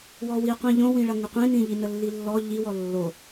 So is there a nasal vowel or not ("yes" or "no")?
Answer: yes